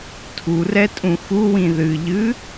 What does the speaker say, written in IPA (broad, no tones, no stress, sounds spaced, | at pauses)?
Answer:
tʰ u r ɛ tʼ ũ x u w ĩ ð ɨ ʎ ɨ